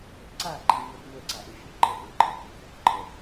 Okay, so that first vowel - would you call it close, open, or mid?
open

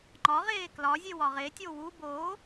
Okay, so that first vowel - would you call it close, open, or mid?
open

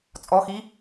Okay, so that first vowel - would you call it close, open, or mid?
mid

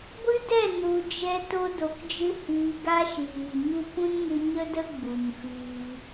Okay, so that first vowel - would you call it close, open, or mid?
close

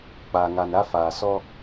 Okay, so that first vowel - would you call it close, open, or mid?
open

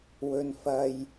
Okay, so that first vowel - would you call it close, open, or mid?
mid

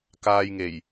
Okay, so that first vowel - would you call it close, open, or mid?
open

